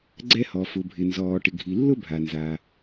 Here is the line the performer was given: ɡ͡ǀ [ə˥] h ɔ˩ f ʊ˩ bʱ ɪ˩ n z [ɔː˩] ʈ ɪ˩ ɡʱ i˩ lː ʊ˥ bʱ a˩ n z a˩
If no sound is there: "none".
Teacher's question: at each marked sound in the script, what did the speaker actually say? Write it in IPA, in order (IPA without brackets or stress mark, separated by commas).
ɛ˥, ɔː˩